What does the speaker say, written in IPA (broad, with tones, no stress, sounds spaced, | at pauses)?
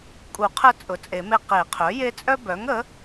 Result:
kʼ u˨˩˦ qʰ ə˦ t͡sʼ ʊ˩˥ t͡sʼ e˨˩˦ m e˦ q e˨˩˦ qʰ œ˩˥ j e˦ t͡sʼ œ˦ b œ˩˥ ŋ ə˩˥